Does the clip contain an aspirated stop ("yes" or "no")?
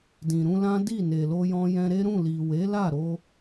no